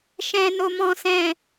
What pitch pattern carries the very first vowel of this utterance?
low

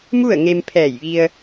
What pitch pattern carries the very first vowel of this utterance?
falling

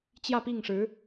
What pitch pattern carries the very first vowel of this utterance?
falling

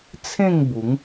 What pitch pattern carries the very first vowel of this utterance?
falling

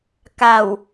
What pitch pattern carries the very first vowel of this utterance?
low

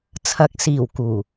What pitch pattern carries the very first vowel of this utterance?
rising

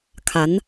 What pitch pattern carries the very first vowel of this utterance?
rising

